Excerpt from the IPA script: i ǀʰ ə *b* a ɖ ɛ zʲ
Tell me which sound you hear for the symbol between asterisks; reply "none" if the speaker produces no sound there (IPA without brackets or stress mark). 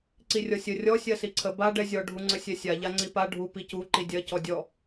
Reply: b